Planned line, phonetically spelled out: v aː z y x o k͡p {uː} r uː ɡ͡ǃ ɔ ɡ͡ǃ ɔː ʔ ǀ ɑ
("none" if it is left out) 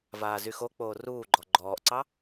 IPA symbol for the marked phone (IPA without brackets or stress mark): oː